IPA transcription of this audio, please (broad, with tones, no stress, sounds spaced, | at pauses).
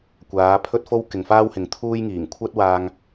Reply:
kʷ aː˨˥ pʰ ɵ˥ t̚ f o˥ w k ɪ˨ ŋ f aː˥ w h ɪ˨ ŋ t̪ʰ uː˥ j ŋ iː˨˩ ŋ kʷʰ ɐ˥ t̚ w aː˧ ŋ